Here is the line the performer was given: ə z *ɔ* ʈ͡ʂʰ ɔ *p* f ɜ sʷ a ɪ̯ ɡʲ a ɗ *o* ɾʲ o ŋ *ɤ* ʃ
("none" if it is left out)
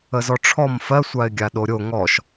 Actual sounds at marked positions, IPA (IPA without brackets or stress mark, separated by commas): ɔ, m, o, ɔ